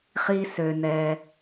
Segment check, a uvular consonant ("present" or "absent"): present